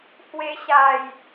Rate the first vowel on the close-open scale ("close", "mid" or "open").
mid